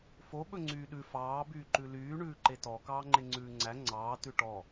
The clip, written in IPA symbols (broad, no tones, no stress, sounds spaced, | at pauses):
f o ɓ ɵ ŋ͡ǀ yː ɗ ʉ f ɑː b yː ǃ ʉ l yː ɳ ʉː ǃ e t ɔ k ɑː ŋ͡ǃ e ŋ͡ǀ ʉː ŋ͡ǀ æ ŋ͡ǀ ɑː t ʉ ʈ ɔ